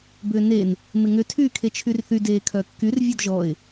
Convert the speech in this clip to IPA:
bʏːnen | mɪŋʏ tʰyːkʰet͡ʃʰyrθy deːkʰœkːyr vʲɔdʒɔɪ̯

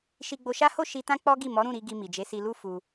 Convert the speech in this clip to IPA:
ʃi˧ɡ͡bo˧ʃa˦ho˦˨ ʃi˧tã˦ k͡pɔ˦ɡi˦˨ mɔ˨˦ɾũ˦˨ɾi˧ ɡi˧mi˨d͡ʒe˨˦ si˧lu˦ fu˧

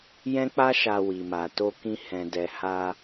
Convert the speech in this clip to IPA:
jɛ̃˦k͡pa˦ ʃa˧wi˨ma˨ to˧kĩ˧ hɛ̃˨dɛ˨ha˧

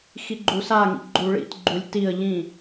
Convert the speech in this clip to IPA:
xiɡ͡ǃusaŋḭ ɡ͡ǃuɭḭtɡ͡ǃulʲ tiə̯ ʎĩ

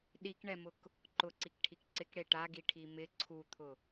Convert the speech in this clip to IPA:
ɗikɳɛmʊk | ǃʊǀikʈʰik ǀɪkɽe ʈaɡiʈʰi mɪ ǀʰut̪ʰʊ

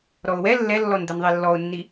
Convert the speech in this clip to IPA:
ɾɔʊ̯wɛ lːɛlːɔnd̪ɛn ðˤelːɔʊ̯nːi

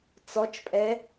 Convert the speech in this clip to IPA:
t͡sɔt͡ʃpʼɛ

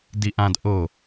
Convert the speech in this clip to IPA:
diʔãd ʔo

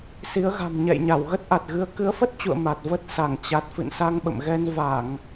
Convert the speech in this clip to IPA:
si˨˦ə̯ɣa̤˨˩m ɲɛ̰˧˨jɲa˧˩w ɣə˦˥t̚ʔa˨˩t̚ɣɨ˧ə̯ kɨ˨˦ə̯fə˦˥t̚t͡ɕṵ˧˨ə̯ ma˨˩t̚və˦˥t̚ sa˧˩ŋt͡ɕa˨˩t̚fɨ̰˧˨n sa˧ŋɓə̰˧˨mɣɛ˧n va˧˩˨ŋ

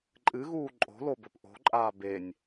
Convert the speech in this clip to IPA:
ǃʼɨɣuː ǃʼo̤lo bɵpʔo̤ǃʼaː benʲ

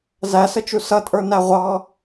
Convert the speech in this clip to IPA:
zæsət͡ʃu sʌtʼə˞ næʁʷɑ

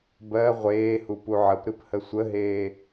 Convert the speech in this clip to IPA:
bɜ ʁʷeːhu puʕəpɾɨp həsʷəɦeː

